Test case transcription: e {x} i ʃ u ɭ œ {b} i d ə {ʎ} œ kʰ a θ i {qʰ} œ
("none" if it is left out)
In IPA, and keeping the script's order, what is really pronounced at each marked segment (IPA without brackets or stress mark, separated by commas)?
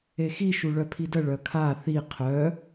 x, pʰ, ɭ, qʰ